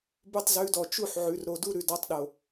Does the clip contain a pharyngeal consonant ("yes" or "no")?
yes